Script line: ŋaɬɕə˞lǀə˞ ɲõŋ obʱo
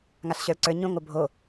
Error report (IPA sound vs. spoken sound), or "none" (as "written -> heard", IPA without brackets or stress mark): none